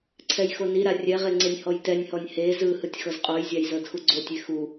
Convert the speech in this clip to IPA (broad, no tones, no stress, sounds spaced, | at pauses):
ǀʰ ɛ j x o n i ɾ a rʲ ɛ ʁ e ŋ͡ǀ e nʲ h ɔ j t ɛ nʲ h ɔ nʲ h e z ɯ h ɯ tʲ x ɤ z qʼ o j zʲ a j z ɤ d x u ɡ͡ǀ o tʲ e x u